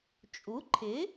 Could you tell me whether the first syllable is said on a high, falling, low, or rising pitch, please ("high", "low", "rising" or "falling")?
rising